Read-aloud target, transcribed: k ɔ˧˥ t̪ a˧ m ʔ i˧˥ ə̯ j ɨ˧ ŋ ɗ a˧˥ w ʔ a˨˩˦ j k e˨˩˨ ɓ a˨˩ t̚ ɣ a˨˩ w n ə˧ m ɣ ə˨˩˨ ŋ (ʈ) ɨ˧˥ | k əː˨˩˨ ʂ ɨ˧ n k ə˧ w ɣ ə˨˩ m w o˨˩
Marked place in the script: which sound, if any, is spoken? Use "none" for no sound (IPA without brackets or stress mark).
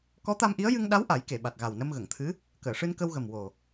t̪ʰ